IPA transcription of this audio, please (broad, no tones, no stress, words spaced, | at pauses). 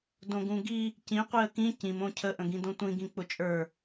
dõɡũɡi | cĩ qʷiə̯kĩ cĩm õcʰə ʔə̃ɡĩdõtʷĩ ɡĩk͡pʊt͡ʃʼə˞